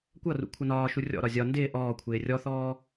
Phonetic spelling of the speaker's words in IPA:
kʷ ʌ r ṵ kʷʰ ʌ n ɒː ʃ u rʲ ɔ̰ ɾ ɒ zʲ ɒ n d ɪː ʔ ɔː kʷʰ ɪː rʲ ɔ θ ɔː

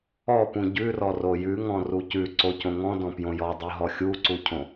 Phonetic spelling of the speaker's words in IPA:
ɔ p ũ ɟ ʉ r ɔ r o j ʉ ŋ ɔ̃ r u c ʉ ǀ o c õ ŋ ɔ̃ d ɔ̃ p j õ j ɔ dˤ o ɦ ɔ xʲ u ǀ u cʰ õ

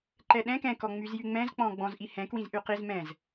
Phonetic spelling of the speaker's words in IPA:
ǃ ɛ ɗ ɛ̃ k ɛ̃ k ɔ ŋ͡m y z j y ŋ͡m ɛ̃ z k͡p ɔ̃ ɡ͡b ɔ̃ z ʔ i h ɛ̃ k w ĩ z ʔ y q i z m ɛ̃ z

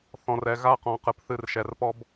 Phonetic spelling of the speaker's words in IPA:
θ ɔ̃˨ r ɛ˨ ɣ a˦ q ɔ̃˨ q ɨ˨ p θ ɨ˦˨ r ʃ ɛ˨ r p ɔ˦ b

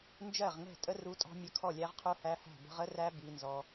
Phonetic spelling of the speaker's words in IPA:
n d͡ʒ ɜ˥˩ ʁ ŋ ɛ̤˥˩ tʼ ə˦˥ r u˦˥ tʼ ɔ̤˦˥ mʲ ə˦˥ kʰ ɔ˥˩ lʲ æ˦˥ ʁ qʰ u˦˥ h æ˦˥ h æ̤˥˩ b ə̤˦˥ ʁ ə˦˥ r æ˦˥ b i˦˥ n z ɔ˦˥

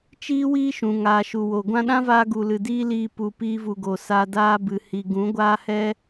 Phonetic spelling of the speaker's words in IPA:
t͡ʃ iː˦ w iː˦ ʃ ũ˨ ŋ aː˨ ʃ u˨ w o˨ ɡʷ ã˧ ɗ ã˦ v aː˧ ɡ u˨ l ɨ˨ d iː˦ l iː˧ p u˨ p iː˧ v u˨ ɡ o˨ s a˧ d aː˦ b ɨ˨ h i˨ ɡ ũ˨˦ ɡʷ aː˦ h ɛ˦

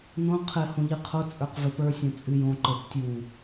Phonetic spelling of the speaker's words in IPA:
n õ qʰ ɘ h õ ʎ ɨ qʰ o t͡sʼ ə˞ q v ɘ p ə˞ sʲ õ t͡sʼ ɨ j õ ǃ ə˞ p tʲ u

